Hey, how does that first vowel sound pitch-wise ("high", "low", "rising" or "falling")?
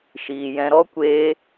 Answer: low